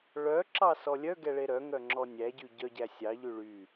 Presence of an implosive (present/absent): absent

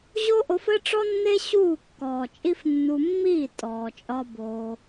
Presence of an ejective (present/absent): present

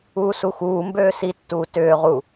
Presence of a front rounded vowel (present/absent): present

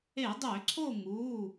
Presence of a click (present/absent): present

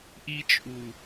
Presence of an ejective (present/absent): present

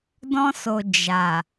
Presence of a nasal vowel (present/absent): present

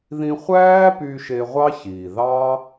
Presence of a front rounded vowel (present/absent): present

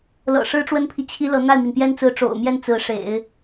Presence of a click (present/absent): absent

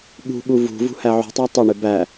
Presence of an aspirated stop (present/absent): absent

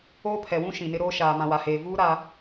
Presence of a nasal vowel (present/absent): present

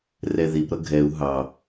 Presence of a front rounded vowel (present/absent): absent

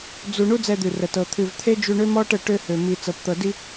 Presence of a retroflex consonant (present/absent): present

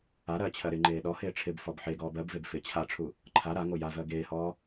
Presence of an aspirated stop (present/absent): present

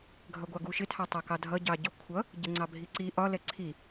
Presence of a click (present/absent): present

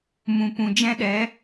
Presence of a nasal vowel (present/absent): present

